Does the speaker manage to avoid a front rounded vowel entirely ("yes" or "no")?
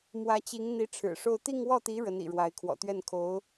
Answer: yes